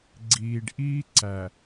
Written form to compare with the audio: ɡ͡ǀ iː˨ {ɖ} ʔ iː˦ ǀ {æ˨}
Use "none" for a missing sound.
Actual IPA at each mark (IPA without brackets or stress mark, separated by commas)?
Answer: ɖ, æ˨